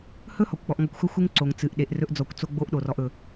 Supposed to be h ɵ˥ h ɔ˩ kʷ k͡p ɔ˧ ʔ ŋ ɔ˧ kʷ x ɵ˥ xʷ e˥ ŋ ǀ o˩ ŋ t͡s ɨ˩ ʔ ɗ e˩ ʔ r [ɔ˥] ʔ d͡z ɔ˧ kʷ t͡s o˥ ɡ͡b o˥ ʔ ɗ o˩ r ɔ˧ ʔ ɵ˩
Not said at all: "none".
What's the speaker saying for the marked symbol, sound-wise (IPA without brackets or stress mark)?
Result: ɵ˥